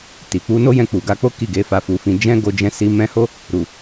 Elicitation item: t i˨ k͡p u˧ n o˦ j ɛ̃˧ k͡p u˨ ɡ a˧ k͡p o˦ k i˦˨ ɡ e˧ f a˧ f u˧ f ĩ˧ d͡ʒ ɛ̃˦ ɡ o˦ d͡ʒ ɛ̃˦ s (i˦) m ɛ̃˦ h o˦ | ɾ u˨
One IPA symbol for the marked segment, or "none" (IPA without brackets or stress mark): i˦